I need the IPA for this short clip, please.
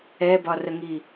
ɛ b ɒ r ə ŋ i

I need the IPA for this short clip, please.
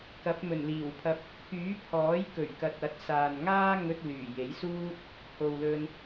k ɐ˨˥ p̚ m ɵ˨˩ n l iː˨˩ w pʰ ɐ˧ p̚ | k yː˨˥ pʰ ɔː˨˥ j k ɵ˨˩ ɥ k ɐ˨ t̚ ɐ˨˥ t̚ s aː˨ n ŋ aː˥ ŋ ɵ˧ t̚ l yː˨˩ j e˨˥ j s uː˥ t̚ | h o˨ w l ɵ˧ n

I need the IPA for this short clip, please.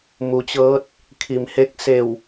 m u˩˧ t͡ɕ ɤː˧˥ t̚ | kʰ i˩ m h e˧˥ k̚ s e˧˩ w

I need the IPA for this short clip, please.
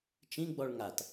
t͡ʃ ĩ ɡ͡b ɔ ɭ ŋ a t

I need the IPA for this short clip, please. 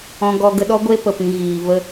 ɔ̃˧ ɡ ɔ˧ ɡ ə˧ ɗ ɔ˦ ɡʷ e˦ p ə˨ p ĩ˨ ɣ iː˨ v ə˧

